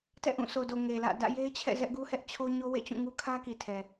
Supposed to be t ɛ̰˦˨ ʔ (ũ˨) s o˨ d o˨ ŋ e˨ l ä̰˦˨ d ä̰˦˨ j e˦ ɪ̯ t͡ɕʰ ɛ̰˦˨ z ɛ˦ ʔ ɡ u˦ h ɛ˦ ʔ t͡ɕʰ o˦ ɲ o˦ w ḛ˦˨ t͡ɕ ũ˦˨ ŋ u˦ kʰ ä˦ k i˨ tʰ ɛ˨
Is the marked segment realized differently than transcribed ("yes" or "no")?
yes